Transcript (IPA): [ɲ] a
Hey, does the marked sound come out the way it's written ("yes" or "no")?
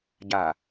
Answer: no